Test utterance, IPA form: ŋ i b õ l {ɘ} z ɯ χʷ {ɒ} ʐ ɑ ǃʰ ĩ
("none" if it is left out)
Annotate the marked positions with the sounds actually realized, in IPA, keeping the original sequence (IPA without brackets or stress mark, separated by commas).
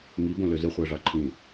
ø, ɑ